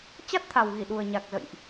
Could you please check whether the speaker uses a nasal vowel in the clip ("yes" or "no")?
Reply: no